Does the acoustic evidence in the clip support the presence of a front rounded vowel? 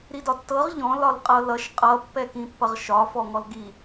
no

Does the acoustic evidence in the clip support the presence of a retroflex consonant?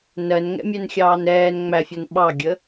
no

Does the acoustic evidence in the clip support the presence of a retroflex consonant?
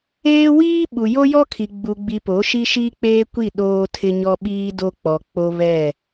no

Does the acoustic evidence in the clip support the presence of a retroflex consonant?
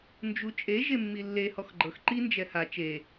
no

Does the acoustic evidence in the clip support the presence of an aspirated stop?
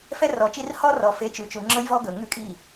no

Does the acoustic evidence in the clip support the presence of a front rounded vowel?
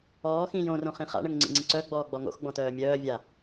yes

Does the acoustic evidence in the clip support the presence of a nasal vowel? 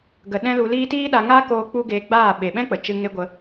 yes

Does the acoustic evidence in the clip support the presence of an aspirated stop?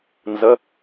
no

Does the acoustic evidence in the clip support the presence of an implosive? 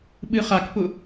yes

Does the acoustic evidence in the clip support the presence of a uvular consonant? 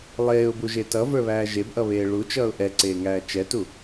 no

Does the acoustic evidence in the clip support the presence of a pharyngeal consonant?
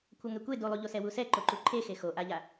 no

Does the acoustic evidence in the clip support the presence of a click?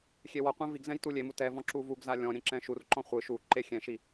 yes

